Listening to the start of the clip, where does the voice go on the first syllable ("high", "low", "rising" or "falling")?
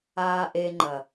low